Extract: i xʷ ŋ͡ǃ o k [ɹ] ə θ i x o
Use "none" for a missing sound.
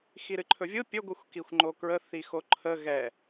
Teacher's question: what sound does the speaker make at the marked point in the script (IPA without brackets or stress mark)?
ɹ